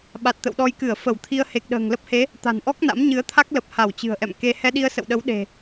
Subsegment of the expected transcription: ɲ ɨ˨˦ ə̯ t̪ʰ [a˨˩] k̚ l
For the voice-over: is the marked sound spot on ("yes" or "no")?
no